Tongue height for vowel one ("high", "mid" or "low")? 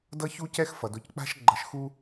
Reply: mid